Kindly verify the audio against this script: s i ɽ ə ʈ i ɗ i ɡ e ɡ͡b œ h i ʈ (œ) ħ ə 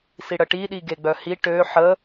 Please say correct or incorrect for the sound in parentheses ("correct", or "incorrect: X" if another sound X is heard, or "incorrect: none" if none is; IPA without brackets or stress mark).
incorrect: ø